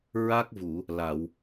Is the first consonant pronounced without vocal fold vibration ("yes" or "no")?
no